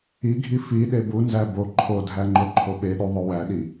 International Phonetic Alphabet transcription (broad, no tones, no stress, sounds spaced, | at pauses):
i ɡʱ i f i ɗ e b u n z æ b o ǃʰ o dʱ æ ŋ͡ǃ o ǃʰ o ɓ e ɗ u ðˤ o w æ ɗ i